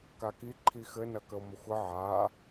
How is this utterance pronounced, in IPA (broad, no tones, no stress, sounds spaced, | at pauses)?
k a k i ǃʰ i x ɘ n ɐ k ə o̯ m ə xʷ ɘ ʕ a